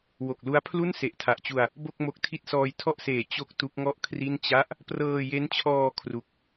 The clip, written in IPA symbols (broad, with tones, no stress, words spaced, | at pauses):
wo˨˩k̚lu˦˥a̯pʰlu˥˩n se˨˩ʔtʰa˨˩ʔt͡ɕu˧a̯ | bo˥˩k̚mo˦˥k̚tʰi˥˩t̚ sɔː˧jtʰɔ˥˩ʔseː˨˩ t͡ɕo˥˩k̚tu˦˥k̚ ŋɔ˥˩ʔkʰri˥˩n t͡ɕa˦˥ʔ | prɤː˧je˦˥nt͡ɕʰɔː˧ kʰru˦˥k̚